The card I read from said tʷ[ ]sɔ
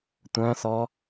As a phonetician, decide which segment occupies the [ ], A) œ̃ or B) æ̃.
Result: A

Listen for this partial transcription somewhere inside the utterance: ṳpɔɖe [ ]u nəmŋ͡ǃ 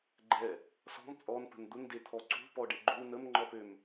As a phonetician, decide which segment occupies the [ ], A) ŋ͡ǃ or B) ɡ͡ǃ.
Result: B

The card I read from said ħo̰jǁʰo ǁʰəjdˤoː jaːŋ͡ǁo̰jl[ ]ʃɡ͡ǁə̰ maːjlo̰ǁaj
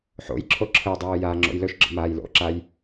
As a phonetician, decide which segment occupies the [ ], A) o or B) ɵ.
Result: B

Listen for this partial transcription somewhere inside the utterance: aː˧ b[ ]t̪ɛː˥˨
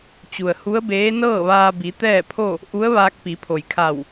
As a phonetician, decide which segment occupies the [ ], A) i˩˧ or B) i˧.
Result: A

